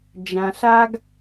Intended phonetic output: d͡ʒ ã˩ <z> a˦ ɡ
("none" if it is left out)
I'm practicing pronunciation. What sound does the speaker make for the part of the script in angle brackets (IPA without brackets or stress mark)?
ɬ